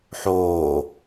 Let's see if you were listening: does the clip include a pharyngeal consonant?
yes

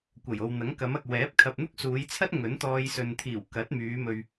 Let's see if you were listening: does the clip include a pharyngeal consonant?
no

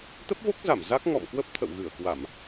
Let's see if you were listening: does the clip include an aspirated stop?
yes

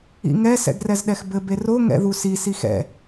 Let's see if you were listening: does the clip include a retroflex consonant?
no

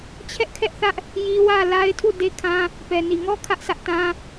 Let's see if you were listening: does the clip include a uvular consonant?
no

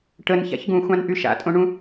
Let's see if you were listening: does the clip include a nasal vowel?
yes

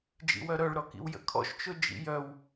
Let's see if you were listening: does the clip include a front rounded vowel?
yes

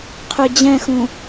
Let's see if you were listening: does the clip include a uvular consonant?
yes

